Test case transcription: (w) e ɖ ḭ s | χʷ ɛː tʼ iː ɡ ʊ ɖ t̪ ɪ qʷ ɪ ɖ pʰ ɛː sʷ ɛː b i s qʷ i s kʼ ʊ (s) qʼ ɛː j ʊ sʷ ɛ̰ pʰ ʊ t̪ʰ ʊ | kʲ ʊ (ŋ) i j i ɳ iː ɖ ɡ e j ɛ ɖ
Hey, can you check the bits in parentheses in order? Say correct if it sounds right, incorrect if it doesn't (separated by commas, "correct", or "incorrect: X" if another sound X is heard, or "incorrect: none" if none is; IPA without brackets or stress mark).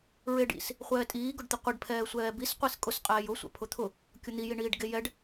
incorrect: ɹ, correct, incorrect: n̪